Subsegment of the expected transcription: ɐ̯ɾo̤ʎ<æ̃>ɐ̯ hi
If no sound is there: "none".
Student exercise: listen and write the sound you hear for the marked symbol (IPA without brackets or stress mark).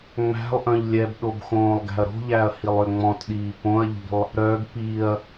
æ